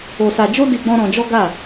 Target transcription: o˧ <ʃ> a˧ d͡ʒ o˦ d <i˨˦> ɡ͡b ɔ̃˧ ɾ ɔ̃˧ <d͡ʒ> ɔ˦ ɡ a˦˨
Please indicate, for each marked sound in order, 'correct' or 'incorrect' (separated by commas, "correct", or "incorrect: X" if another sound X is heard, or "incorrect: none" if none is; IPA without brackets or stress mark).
incorrect: s, incorrect: i˧, correct